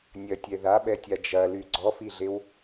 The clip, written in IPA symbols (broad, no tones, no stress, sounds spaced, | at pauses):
nʲ ɐ tʲ ɛ ð a ɓ ɛ tʲ a d͡ʒ ɐ l y ɡ͡ǀ ɔ f i ɮ e w